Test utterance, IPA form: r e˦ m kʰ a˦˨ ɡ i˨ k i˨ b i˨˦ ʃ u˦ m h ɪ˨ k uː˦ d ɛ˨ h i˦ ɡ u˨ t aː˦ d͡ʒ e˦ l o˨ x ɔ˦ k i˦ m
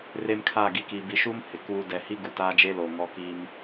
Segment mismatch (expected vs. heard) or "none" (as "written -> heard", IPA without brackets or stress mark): x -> ŋ